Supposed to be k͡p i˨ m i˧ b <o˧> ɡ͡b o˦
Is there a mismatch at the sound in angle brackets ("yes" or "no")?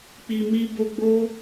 no